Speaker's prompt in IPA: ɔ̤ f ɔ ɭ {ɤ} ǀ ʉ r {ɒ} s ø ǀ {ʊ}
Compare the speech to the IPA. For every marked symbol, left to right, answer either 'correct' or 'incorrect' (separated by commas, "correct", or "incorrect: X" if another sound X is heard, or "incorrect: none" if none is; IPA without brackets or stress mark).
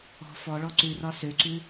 incorrect: ɔ, correct, incorrect: ʉ